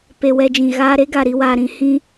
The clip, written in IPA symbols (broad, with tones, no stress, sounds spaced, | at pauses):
p e˧ w ɛ˧ d͡ʒ ĩ˨ ɣ aː˧ ɾ e˦ ɡ a˨ ɾ i˧ w aː˨ ɾ ĩ˧ h ĩ˦